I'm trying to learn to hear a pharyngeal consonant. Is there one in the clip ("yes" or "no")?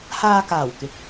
no